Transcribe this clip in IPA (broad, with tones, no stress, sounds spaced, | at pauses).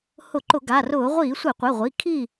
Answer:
h ʊ˧˩˧ ǃ ʊ˧˩˧ ɡ a˩˧˩ r ʊː˧˩˧ ʁʷ iː˧˩˧ sʷ e˧˩˧ qʷ e˩˧˩ ʁʷ i˩˧˩ kʰ i˥˨